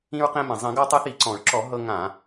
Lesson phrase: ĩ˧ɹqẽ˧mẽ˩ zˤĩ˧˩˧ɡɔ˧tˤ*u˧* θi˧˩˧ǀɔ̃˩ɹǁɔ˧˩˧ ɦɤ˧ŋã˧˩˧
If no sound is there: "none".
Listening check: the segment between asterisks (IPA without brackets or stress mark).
u˧